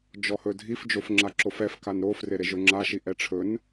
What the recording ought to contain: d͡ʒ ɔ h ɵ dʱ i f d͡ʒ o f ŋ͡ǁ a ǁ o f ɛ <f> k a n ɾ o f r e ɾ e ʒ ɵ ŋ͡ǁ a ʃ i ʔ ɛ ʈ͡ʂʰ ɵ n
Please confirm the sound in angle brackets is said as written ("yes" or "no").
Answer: yes